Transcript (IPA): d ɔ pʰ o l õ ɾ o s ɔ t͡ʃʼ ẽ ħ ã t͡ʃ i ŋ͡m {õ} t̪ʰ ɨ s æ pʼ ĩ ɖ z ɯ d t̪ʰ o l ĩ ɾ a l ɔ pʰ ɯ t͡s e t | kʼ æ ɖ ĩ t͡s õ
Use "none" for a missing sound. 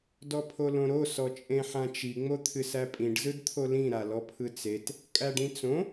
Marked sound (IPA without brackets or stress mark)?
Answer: o